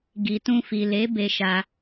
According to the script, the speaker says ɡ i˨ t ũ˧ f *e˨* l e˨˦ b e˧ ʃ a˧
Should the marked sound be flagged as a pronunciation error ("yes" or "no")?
yes